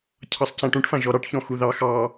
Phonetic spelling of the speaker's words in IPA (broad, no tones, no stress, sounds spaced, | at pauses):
cʰ ɑ sˤ c ã ʈ ũ ʈ f ã ʒ ɔ ɾ ɑ ʈ ç ɔ̃ x u ð ɑ x ɑ